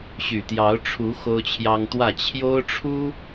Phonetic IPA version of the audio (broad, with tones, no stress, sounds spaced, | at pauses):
ɕ y˨˩ t̪ j ɑ˨˦ ʊ̯ ʈ͡ʂʰ u˨˦ x o˦ ʊ̯ t͡ɕʰ j ɑ˦ ŋ t̪ w ä˥˨ t͡ɕʰ j o˦ ʊ̯ ʈ͡ʂʰ u˦